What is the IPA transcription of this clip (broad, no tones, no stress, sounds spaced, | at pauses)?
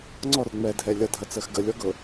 ŋ͡ǀ ɔ r ŋ͡m ɛ dʱ ɛ lʲ ʌ dʱ ɐ t͡s ɜ x ɡ ə lʲ ɔ ɡ ɤ